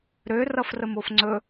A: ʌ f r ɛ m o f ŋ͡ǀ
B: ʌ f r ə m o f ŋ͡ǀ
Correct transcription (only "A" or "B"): B